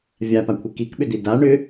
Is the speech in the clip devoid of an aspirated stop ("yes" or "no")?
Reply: no